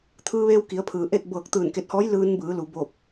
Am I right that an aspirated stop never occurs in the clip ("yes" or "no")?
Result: no